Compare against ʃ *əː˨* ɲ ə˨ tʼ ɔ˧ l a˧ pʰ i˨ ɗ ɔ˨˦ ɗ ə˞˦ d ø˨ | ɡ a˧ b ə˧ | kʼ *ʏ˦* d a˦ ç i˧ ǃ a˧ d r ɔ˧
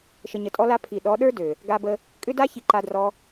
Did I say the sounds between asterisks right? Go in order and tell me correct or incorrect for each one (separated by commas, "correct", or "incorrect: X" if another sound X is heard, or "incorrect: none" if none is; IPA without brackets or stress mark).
incorrect: ə˨, correct